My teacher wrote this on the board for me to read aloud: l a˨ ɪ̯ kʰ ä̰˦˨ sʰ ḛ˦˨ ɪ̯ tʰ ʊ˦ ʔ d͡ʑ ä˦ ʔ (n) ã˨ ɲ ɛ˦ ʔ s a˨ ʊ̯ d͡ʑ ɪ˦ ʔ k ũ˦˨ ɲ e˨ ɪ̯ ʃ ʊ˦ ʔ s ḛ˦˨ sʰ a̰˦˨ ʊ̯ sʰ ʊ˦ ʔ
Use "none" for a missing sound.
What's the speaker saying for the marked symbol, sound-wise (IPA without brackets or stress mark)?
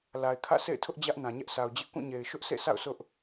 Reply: n